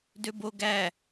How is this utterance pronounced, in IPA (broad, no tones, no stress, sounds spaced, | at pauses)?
d ø b o ɡ æ